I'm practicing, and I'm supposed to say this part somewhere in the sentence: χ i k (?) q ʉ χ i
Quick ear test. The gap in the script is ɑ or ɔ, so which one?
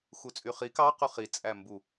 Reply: ɑ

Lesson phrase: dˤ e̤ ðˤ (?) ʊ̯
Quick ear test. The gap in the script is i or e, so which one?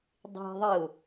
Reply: i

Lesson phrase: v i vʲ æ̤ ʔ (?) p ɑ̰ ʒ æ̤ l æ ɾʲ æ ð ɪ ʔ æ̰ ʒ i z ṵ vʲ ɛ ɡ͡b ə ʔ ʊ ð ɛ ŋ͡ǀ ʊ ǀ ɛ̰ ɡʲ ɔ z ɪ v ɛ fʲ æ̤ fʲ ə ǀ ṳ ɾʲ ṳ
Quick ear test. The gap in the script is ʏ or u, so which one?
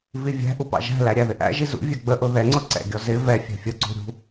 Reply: u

